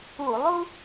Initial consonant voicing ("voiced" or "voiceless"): voiced